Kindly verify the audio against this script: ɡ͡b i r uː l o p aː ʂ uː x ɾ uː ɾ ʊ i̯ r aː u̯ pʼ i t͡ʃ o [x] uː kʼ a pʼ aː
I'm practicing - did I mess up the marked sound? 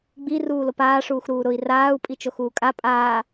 no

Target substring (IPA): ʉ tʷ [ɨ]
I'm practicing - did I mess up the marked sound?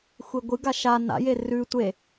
yes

